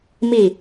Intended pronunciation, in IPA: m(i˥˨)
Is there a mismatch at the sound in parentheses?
no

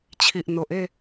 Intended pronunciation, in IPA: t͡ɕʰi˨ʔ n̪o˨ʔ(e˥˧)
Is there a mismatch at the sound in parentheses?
no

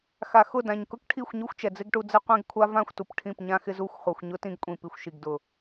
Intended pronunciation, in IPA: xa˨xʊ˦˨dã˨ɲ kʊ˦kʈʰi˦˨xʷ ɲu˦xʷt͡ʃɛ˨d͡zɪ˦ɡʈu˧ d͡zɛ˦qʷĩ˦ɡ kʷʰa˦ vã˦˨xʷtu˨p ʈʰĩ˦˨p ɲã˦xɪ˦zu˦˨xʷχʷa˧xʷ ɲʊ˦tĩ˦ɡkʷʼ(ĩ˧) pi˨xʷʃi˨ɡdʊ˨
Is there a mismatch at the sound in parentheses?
yes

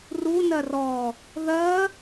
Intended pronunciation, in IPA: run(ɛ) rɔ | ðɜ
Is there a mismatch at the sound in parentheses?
yes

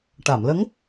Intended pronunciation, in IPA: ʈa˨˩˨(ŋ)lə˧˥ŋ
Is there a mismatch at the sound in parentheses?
yes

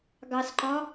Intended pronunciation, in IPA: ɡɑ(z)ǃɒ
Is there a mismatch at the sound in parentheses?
yes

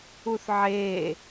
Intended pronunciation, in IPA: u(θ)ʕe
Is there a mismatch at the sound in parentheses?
no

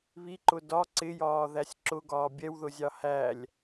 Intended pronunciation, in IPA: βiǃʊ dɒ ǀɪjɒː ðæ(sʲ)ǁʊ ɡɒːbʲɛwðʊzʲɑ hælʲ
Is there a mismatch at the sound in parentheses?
no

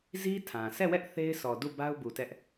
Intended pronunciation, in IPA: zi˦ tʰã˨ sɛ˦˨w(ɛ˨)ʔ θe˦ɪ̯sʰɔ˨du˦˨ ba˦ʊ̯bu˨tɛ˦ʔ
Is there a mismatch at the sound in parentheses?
yes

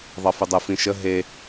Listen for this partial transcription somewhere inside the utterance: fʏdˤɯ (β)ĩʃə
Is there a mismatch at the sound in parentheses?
yes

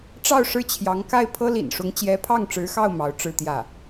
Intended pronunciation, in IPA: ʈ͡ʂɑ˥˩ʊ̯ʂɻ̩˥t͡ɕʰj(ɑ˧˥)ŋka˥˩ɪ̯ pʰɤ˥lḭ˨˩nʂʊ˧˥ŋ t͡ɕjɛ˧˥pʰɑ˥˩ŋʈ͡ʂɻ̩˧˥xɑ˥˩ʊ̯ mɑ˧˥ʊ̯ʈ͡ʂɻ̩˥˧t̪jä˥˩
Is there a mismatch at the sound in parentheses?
no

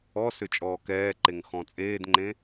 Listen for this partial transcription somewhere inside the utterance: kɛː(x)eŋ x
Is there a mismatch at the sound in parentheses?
yes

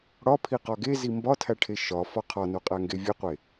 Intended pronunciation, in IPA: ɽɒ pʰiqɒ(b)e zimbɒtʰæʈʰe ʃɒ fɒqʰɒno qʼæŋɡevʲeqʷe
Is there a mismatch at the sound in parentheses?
yes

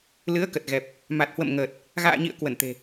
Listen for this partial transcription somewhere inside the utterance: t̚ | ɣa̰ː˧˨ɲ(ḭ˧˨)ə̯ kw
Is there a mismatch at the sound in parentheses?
no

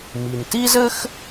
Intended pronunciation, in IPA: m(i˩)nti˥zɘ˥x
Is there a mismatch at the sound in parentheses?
no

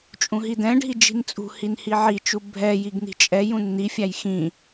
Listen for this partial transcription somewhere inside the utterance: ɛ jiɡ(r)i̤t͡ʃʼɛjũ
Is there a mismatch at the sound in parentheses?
yes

